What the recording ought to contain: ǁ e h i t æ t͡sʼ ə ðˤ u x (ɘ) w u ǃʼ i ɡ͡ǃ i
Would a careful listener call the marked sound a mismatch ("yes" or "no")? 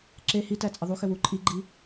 no